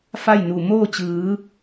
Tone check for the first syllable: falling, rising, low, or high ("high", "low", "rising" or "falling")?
falling